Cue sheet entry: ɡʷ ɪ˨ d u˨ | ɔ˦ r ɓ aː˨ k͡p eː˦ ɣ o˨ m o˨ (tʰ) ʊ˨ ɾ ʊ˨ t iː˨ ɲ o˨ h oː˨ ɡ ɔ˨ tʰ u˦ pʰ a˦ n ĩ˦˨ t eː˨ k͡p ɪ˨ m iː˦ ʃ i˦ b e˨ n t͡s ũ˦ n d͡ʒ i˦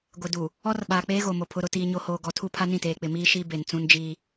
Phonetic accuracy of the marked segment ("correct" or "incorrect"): incorrect